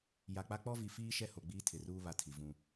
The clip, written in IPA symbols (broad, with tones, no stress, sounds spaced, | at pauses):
j a˨ k͡p a˦ k͡p ɔ˦ v i˨ f iː˦ ʃ ɛ˦ h o˨ ɡ͡b iː˦ tʰ ɪ˨ r uː˦ β a˦ tʰ i˨ v ũ˦